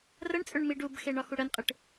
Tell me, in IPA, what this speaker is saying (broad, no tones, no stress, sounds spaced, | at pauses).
r ə ɳ t͡sʼ ʏ ɳ m i ɖ u b x e ɳ ɒ x u ɽ ə n qʼ ɨ ʈ